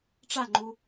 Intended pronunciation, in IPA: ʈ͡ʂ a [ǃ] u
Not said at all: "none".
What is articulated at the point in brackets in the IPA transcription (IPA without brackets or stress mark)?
ŋ͡ǃ